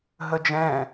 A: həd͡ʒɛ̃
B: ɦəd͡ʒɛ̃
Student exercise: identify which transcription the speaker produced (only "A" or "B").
B